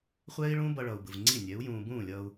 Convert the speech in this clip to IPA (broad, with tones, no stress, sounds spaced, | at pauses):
χʷ ɛː˦ i̯ ɭ ũː˦ b ʌ˧ ɭ ʌː˨ u̯ b ɯ˨ v ŋ͡ǀ i˦˨ nʲ ɛ˨˦ u̯ j ũː˧ b ũː˦˨ lʲ ʌː˧ u̯